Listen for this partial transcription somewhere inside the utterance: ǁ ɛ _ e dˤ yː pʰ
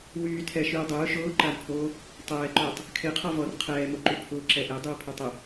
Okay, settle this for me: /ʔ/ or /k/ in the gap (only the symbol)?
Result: ʔ